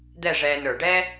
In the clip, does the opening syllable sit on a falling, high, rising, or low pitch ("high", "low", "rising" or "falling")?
falling